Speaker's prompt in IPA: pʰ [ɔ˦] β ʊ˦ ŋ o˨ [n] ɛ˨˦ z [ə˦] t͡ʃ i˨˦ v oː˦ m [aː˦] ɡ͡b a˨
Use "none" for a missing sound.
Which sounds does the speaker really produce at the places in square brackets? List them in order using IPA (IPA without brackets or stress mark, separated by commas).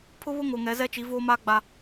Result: ʊ˦, ŋ, ɛ˦, aː˦